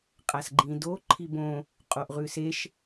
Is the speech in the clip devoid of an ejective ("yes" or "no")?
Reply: no